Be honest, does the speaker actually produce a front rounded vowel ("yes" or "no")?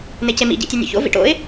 no